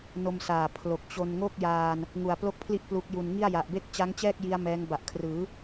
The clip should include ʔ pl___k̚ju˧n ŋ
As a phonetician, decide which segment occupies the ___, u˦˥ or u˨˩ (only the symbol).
u˦˥